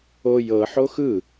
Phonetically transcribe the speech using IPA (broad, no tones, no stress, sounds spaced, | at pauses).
o j ɤ ħ o x ɯ